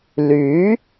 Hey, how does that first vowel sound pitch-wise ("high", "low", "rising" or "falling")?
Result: rising